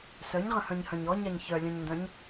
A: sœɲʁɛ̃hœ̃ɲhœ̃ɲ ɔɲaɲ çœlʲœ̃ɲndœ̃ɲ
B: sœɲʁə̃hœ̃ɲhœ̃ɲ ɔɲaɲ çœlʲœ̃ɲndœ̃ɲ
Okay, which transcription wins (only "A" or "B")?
B